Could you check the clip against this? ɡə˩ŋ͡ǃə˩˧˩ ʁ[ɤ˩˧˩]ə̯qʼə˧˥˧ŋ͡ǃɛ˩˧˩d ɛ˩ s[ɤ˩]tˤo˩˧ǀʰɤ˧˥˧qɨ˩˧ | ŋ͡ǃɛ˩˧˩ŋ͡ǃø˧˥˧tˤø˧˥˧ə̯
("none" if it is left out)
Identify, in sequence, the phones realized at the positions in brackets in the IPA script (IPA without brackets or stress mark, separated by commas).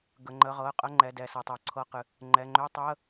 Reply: ɤ˩˧˩, ɤ˩